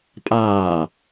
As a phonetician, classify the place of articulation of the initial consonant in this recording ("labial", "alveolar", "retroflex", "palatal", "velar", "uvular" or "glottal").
labial